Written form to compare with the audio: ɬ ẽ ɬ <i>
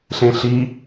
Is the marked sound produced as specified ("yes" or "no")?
yes